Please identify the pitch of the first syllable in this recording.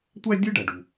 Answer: high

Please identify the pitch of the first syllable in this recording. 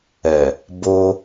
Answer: low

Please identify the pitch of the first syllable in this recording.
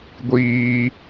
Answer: high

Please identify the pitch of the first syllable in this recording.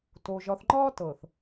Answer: low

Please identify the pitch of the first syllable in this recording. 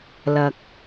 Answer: low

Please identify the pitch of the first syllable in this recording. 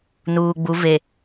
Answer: low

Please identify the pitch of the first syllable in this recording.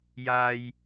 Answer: low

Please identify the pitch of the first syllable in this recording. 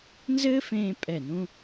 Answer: high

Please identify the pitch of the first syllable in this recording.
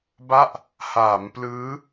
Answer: falling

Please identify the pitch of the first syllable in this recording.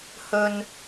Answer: high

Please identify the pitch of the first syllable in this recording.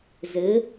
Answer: rising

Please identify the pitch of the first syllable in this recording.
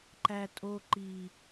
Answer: low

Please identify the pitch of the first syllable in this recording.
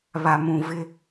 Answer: low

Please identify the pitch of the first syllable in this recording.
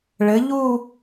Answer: rising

